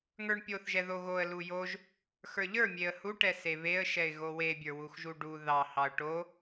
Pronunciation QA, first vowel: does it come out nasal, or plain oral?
oral